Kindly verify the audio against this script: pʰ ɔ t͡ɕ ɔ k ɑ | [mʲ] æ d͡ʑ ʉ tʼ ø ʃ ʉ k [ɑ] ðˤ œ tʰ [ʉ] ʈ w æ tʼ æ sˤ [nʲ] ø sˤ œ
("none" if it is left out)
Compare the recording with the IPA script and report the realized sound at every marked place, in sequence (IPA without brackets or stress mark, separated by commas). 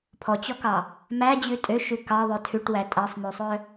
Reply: m, ɑ, ʉ, n